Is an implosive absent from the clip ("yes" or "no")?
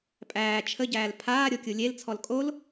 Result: yes